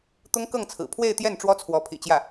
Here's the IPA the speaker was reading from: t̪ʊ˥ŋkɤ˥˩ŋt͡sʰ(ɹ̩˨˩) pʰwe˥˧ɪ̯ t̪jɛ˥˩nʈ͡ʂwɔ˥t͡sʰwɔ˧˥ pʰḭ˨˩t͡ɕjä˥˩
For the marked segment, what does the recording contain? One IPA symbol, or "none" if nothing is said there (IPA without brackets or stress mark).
ɹ̩˨˩